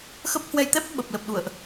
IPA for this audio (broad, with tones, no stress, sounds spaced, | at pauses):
x ə˦˥ p̚ h w ɛ˧ j t̪ ɛ˦˥ p̚ ɓ ə˨˩ p̚ l ə˨˩ p̚ ɗ ṵ˧˨ ə̯ ʔ